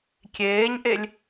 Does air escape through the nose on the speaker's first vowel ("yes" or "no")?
no